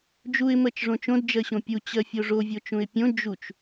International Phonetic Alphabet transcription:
d͡ʒ u ɪ̯ m ɜ t͡ʃ ʐ õ t͡ʃ õ d d͡ʒ ɜ ɕ õ pʲ u t͡ɕ ɜ fʲ o ʐ o vʲ o t͡ʃ ũ ɪ̯ pʲ õ d͡ʒ u t͡ʃ

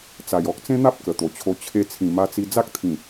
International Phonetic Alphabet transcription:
t͡s a˨˩ j ɔ˦ k̚ t͡s ẽ˦ n̪ a˦ p̚ k ə˨˩ t̪ o˨˩ t͡ɕʰ o˧ t͡ɕʰ e˧ t͡sʰ ĩ˨˩ m a˧ t͡s i˧ d͡z a˦ k̚ t̪ʰ ĩ˨˩

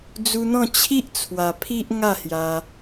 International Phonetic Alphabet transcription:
d͡z u˧ n̪ ɔ̃˥˧ t͡ɕʰ i˦ ʔ t͡sʰ w a˨˩ pʰ i˦ ʔ ŋ a˥˧ h j a˧

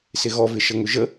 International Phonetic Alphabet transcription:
s ɪ ɣ ɔ v ɪ ʃ ə ŋ ʏ ʒ ə

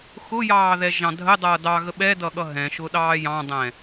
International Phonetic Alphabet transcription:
x ʊ j ɑː ð ɛ ʒ ɑ̃ dʱ ə dˤ ʌː d ɑ ɣ ə ɓ ɛ d ʌ ɠ ʌ ɦ ɛ̃ ʃ ʊ ɗ ɑː j ɑ̃ dˤ ɛ̃

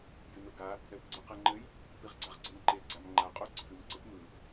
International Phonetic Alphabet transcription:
j ɨ n o ɡ a | ɛ p ɡ͡ǀ ɯ q ɛ ŋ͡ǃ ɘ j | p i ʁ ɡ͡ǀ a ʁ ɡ͡ǀ ɤ n ǃ e ɡ͡ǀ a m ŋ͡ǃ a qʼ o ǀʰ ɨ m ǀ ɘ p m ɯ

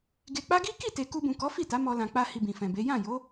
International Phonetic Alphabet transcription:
ɡ e˧ k͡p a˦ ɡ i˦ k i˦˨ t e˨ k u˧ b ũ˨ k ɔ˨˦ f i˦˨ t a˨˦ m ɔ˧ l ã˨ k͡p a˧ h i˧ b ĩ˨ f ɛ̃˨ b e˨˦ j ã˦˨ j o˨˦

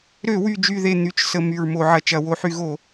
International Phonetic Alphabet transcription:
ɾ ø˧˩˧ w y˨˩ d͡ʒ y˨˩ ð e˨˩ n̪ y˨˩ t͡ʃ s ə˨˩ m y˨˩ ɹ m o˧˩˧ ʕ ɐ˨˩ t͡ʃ ɐ˧˩˧ w o˧˩˧ ħ y˧˩˧ ɣ o˧˩˧

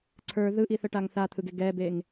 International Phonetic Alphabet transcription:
ǀʰ ə˞ ð ɯ ʔ i θ ə ʈ a ŋ θ a t̪ʰ ɯ ɡ e ɡ ɛ b e ŋ

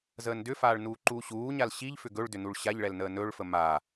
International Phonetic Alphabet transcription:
z əː n d ʏ f aː ɭ n uː ǃ uː ɕ uː ɲ a l ɕ i ʎ f ʏ ɡ ɵ ɭ d ʏ n u ɭ ɕ a ʎ ɭ ɛ l n əː n ɵ ɭ f ə m a

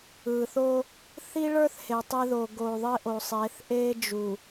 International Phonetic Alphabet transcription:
ɯ˨ θ o˦ | θ i˦ ɭ ə˞˦ θ h e˨ tˤ ɪ˦ ð o˨ ɡ o˨ ðˤ ɪ˦ ʔ o˨ sˤ e˨˦ θ ʔ e˦ d͡ʒ u˨

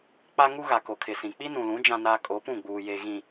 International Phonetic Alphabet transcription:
k͡p a˦ ŋ u˦ ɣ a˨ k o˨ kʰ ɪ˨ s ĩ˨ k͡p i˦ n ũ˨ l ũ˨˦ d͡ʒ ã˦ n aː˦ kʼ o˨˦ p ũ˦˨ ɡ͡b uː˨ j e˨ ɣ ĩ˨

